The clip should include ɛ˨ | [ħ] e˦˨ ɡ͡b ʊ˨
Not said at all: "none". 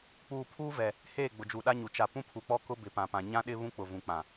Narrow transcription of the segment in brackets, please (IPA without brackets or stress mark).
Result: h